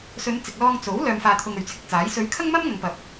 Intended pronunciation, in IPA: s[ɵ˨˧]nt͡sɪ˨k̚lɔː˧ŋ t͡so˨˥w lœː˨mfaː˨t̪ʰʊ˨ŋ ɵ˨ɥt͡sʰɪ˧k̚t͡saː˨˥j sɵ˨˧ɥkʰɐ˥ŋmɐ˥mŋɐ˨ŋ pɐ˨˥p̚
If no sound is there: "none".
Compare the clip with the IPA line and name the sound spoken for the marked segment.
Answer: ɵ˨˧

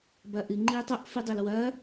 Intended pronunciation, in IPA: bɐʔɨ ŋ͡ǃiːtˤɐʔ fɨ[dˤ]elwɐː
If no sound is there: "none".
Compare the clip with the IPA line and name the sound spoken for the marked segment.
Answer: dˤ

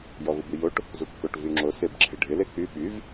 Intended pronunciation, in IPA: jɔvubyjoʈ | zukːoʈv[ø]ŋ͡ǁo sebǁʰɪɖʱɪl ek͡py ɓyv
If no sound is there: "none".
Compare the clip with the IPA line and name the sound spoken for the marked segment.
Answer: y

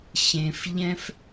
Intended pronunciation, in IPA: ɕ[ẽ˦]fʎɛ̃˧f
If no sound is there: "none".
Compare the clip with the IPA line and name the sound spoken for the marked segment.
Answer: ẽ˨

